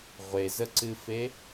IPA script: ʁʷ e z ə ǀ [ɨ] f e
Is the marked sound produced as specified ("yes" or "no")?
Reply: yes